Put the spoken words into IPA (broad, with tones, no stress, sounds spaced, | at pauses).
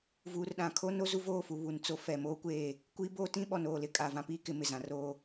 v uː˨ r ɗ ã˨ kʰ o˦ n o˦ z u˦ v oː˦˨ f u˨ β u˨ n t͡s o˦ f ɛ˨ m oː˦ kʷ eː˦˨ | kʷ i˦ b oː˦ t ĩ˦ ɓ ɔ˨ n oː˦˨ l ɪ˦ kʼ a˨ v ã˦ p iː˦ k ɪ˦ m ɪ˨ z ã˨ r oː˦